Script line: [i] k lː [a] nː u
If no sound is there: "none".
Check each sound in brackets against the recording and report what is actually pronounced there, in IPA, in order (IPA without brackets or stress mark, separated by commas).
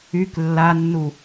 y, a